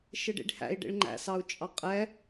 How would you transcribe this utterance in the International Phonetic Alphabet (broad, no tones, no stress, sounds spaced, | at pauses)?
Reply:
ʃ ɪ ɖ ḭ ɖ h æ̰ i̯ ɖ ḭ ɭ ŋ͡ǃ æ̰ s ɑ u̯ t͡ʃʼ ɑ qʼ ɛ